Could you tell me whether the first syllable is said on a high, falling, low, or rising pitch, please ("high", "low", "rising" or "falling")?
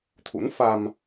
rising